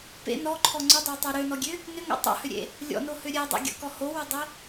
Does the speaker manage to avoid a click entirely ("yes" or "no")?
no